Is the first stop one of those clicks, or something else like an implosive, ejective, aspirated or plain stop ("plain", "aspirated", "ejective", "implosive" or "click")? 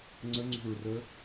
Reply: click